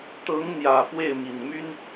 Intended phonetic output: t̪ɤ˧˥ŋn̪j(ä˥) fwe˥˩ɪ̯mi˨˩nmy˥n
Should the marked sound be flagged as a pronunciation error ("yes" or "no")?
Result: yes